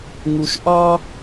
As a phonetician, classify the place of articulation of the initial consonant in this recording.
velar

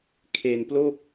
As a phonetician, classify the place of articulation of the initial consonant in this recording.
velar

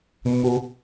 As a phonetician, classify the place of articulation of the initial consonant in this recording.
labial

